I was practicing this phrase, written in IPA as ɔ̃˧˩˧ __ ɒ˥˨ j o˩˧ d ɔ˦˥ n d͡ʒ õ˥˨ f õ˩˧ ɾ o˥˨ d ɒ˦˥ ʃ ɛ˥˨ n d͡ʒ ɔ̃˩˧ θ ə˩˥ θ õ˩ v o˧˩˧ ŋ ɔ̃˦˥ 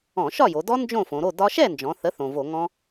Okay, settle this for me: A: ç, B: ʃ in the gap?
B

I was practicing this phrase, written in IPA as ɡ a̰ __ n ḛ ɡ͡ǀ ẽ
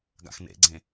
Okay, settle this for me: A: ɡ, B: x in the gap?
B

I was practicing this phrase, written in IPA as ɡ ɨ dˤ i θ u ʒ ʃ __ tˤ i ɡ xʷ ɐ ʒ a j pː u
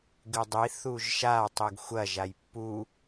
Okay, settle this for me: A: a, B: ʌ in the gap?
A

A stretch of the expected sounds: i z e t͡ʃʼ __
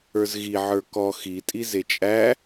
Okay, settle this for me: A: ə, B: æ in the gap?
B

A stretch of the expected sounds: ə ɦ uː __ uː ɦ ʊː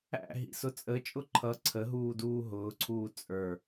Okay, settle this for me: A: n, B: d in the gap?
B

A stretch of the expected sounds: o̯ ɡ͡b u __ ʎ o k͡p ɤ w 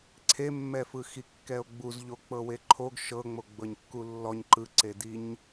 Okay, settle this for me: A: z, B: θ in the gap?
A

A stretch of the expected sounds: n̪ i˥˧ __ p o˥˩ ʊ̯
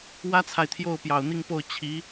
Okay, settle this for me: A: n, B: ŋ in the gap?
B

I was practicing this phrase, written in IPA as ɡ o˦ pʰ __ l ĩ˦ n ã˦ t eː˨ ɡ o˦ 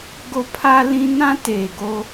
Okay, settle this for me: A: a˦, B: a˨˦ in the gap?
A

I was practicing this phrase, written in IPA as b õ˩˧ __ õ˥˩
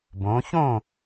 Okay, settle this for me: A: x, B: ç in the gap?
B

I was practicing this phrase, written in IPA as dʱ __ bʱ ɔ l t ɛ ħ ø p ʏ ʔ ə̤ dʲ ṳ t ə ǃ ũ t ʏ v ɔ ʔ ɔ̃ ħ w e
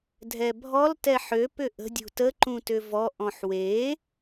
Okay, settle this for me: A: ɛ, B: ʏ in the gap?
A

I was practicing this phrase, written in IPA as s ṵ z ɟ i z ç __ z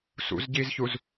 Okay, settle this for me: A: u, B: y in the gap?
A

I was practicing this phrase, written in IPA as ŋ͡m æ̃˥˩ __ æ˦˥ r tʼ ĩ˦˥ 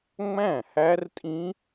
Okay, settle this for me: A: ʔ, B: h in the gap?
B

